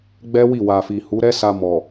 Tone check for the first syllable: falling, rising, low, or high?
high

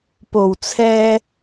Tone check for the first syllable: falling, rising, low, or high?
low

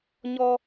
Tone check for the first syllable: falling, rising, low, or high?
high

